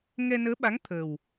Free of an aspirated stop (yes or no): no